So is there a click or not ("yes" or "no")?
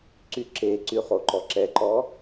yes